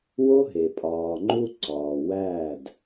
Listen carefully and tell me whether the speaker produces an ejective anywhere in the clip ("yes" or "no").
yes